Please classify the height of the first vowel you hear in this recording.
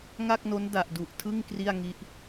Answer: low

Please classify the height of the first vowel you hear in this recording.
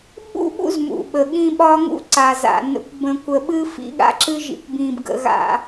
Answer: high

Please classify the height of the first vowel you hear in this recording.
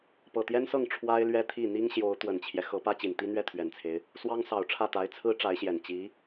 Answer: mid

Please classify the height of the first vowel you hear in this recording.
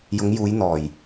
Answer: high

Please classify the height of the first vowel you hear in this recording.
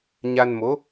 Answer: low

